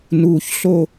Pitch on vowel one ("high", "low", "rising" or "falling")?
low